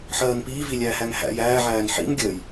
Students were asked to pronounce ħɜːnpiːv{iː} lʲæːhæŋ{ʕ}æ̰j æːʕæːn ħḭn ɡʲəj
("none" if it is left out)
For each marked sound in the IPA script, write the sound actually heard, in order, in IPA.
i, h

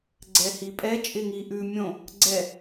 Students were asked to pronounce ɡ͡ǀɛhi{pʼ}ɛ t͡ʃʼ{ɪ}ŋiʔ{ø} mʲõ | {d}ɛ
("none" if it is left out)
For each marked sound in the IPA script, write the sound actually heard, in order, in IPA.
pʼ, ɪ, ʉ, ɡ͡ǀ

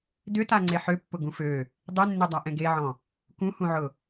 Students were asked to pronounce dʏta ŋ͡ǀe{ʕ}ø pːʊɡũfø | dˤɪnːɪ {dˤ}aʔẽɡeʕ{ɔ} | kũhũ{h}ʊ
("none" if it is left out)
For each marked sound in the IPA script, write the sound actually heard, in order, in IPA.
ħ, dˤ, ɔ̃, ʕ

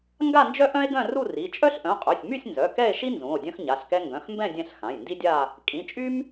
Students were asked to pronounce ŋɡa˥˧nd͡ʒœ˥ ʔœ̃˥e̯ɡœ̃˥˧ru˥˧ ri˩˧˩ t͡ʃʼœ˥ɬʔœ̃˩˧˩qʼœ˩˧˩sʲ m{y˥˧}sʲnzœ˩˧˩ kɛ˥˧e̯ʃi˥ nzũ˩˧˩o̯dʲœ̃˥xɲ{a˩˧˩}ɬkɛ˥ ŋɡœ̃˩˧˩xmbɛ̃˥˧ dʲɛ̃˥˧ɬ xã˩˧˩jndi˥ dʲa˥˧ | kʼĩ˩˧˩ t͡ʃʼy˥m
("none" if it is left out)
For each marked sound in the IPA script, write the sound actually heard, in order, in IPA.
y˥˧, a˩˧˩

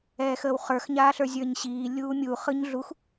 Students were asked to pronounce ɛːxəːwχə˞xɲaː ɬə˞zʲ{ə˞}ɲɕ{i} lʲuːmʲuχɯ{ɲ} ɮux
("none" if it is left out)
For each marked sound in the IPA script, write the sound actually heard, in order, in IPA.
ə˞, iː, ɲ

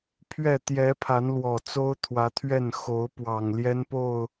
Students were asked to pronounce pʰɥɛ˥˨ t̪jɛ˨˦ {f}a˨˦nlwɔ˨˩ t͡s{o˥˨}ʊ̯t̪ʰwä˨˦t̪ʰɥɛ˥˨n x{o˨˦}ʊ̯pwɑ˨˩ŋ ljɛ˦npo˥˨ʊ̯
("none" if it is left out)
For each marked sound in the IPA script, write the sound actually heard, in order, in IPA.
pʰ, o˦, o˨˦

